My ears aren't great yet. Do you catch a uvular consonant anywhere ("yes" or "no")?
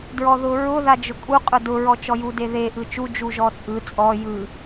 yes